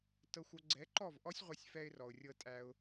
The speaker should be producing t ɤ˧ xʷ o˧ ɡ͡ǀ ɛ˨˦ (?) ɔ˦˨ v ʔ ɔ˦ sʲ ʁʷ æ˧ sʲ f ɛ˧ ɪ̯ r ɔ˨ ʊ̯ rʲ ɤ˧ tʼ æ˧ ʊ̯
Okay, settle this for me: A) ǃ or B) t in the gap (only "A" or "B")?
A